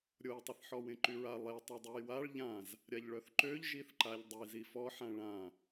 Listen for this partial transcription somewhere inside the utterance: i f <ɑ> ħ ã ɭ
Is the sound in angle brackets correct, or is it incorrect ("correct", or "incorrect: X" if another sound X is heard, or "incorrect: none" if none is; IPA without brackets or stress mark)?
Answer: incorrect: ɔ